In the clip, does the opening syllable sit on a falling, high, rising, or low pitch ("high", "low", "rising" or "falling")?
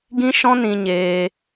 high